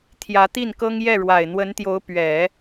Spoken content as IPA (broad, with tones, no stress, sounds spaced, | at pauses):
t̪ʰ j ä˧˥ t̪ i˥˩ n k ɤ˥ ŋ j ɛ˥˩ ɻ w a˨˩ ɪ̯ n̪ w ə˧˥ n t̪ j o˧˥ ʊ̯ p ɥ ɛ˨˩˦